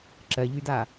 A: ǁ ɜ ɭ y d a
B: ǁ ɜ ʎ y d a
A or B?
B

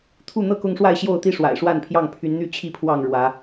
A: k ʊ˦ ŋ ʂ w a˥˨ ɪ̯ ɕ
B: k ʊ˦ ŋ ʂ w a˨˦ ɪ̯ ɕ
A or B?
A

